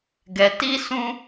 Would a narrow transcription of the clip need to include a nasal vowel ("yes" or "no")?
yes